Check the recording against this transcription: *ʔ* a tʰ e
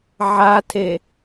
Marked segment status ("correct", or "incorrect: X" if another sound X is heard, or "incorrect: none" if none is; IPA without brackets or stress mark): incorrect: ʕ